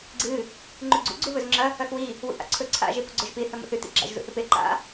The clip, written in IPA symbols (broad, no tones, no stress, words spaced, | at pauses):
ɡ͡ǀɨ | ŋ͡ǃʉɡ͡ǀṵ ɡ͡ǀuβɵzŋ͡ǁɐ | ɐxwi | wṵʔa̰ǀʰɵ ǀʰa̰ ʒepuɡ͡ǀoʒpi θɐmo̰θʉ tḭɡ͡ǁa̰ʒ zṵθɨpe ǃa̰